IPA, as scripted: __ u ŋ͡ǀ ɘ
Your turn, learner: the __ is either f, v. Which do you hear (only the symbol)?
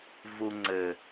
v